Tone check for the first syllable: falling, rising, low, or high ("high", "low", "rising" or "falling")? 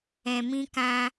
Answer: low